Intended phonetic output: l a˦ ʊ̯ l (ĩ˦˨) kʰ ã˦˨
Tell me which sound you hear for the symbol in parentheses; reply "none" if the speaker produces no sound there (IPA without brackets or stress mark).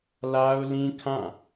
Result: ĩ˦